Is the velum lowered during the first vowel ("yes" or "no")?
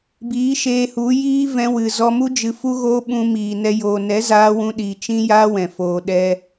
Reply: no